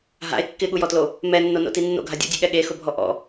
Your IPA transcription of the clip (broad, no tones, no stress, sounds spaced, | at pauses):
ɦ a̰ e̯ kː ɪ ɠ u j ɔ t l o | m ɛ nː o n o̰ t i nː o̰ ɡʱ a dʲ o̰ dʲ e ɠ ɛ ɠ e x ʊ bʱ ɔ ʔ ɔ̰